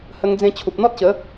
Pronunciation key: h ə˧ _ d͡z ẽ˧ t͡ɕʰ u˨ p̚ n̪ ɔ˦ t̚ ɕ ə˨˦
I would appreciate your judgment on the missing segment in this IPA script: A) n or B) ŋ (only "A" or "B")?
B